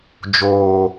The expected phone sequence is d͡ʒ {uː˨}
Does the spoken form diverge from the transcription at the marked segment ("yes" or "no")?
yes